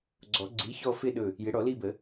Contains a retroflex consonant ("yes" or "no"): yes